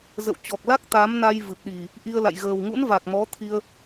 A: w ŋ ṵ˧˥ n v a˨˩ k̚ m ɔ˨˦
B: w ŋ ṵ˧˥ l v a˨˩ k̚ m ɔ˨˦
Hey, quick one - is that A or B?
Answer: A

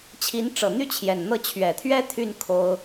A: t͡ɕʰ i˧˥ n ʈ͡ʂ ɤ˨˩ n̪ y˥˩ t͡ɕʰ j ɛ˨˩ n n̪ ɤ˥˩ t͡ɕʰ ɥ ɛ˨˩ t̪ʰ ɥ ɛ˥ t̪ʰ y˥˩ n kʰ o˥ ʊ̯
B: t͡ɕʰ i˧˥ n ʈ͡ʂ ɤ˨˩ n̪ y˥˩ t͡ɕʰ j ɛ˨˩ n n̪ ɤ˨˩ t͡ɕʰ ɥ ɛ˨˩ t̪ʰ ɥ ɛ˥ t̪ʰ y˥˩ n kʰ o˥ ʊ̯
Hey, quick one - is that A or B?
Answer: A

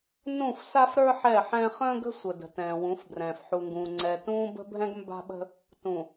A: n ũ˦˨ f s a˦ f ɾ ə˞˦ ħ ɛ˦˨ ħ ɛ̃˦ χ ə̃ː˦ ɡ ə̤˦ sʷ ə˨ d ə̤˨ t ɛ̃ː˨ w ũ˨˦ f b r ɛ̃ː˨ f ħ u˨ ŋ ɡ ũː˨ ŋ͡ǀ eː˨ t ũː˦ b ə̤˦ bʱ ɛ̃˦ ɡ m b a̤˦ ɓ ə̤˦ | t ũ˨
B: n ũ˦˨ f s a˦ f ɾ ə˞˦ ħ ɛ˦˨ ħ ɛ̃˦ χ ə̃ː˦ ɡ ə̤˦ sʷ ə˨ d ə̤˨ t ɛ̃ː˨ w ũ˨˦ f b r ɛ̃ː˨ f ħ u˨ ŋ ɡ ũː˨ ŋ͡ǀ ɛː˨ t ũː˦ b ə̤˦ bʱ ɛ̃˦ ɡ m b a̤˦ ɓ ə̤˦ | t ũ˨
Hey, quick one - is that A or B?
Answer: B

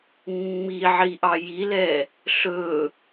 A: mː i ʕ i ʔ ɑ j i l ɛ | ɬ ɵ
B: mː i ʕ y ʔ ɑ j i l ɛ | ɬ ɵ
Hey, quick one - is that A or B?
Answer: A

